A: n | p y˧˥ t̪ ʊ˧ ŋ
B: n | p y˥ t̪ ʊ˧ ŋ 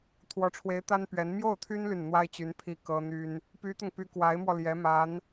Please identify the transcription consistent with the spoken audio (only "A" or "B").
A